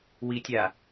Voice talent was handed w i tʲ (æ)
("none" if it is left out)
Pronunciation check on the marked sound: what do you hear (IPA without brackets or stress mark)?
a